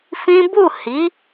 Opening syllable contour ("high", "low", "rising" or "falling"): high